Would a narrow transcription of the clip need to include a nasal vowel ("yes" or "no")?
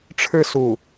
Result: no